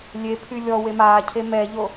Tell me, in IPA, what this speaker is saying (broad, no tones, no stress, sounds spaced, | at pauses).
lʲ e pʰ y lʲ ɔ w e m aː cʰ e m ɛ ʎ o